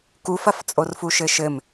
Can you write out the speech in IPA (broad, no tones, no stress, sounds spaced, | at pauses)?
k u f ɐ f t͡sʼ o r f u ʃ ɘ ʃ ɘ m